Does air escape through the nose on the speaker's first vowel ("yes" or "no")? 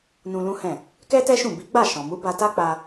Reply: yes